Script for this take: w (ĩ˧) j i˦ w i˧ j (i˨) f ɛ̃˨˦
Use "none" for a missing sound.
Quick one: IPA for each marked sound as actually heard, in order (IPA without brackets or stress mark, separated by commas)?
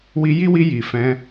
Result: i˧, i˨